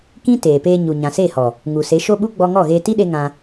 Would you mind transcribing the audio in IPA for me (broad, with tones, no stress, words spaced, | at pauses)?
kĩ˦ teː˨peː˧ ɲu˨ɲã˨se˦˨hɔ˨ | ŋu˨se˨˦ ʃo˦ɓu˦ ɡ͡bɔ˧ŋɔ˦˨ɣeː˧ ti˦ɗe˧ ŋã˧